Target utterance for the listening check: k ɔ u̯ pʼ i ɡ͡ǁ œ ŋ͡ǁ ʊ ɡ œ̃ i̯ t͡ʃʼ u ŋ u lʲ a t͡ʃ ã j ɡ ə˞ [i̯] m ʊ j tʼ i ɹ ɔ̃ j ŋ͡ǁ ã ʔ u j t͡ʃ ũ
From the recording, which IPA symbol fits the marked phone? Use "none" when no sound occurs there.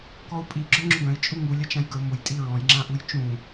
u̯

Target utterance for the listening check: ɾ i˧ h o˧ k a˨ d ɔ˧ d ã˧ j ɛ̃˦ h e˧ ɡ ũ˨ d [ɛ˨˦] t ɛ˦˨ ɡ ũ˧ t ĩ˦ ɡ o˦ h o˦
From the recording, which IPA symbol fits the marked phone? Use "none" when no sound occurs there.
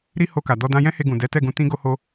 ɛ˨˦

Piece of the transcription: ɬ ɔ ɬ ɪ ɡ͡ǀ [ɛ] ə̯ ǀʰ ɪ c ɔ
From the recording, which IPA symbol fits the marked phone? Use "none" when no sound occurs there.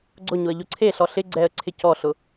ɛ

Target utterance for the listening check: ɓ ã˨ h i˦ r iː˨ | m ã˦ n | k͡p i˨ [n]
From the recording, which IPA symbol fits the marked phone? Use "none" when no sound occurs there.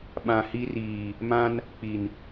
n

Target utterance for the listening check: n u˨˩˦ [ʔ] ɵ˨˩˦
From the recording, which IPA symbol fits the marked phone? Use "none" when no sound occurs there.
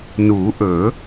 ʔ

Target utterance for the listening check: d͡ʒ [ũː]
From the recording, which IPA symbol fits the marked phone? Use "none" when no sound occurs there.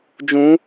ũ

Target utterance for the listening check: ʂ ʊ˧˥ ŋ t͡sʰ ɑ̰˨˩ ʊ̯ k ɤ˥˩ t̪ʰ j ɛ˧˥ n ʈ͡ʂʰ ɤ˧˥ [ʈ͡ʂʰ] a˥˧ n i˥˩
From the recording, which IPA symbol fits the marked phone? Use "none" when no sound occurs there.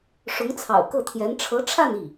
ʈ͡ʂʰ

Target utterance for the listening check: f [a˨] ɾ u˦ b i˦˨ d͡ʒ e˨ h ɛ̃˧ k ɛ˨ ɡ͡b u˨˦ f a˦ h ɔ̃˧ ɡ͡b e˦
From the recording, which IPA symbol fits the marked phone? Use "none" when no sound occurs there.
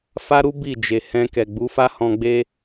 a˦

